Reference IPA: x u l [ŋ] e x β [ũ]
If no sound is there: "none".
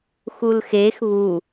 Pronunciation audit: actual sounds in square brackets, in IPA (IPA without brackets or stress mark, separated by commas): x, u